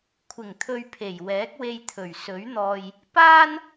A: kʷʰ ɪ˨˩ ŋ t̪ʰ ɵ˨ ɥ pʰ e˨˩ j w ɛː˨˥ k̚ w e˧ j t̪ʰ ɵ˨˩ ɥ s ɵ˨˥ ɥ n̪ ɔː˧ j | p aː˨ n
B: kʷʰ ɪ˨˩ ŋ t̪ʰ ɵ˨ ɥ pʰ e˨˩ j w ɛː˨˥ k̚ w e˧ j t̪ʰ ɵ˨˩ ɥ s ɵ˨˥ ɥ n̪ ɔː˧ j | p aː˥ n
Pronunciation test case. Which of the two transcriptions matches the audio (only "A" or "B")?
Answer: B